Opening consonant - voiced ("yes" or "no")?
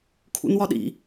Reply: no